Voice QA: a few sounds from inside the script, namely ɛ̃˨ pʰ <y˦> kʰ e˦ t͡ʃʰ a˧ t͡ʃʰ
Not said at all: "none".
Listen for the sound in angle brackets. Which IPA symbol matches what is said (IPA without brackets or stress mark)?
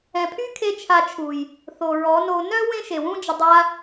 y˦